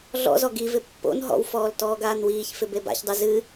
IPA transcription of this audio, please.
ɮɔ̰zɔ ɡivɪ pːo̰n ɦɔ̰wfɔːl tɔːɡaːnwiːçfɪ beba̰çdˤɯ zɨ

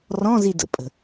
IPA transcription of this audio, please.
rɔ̃zidə̰pʼə̤

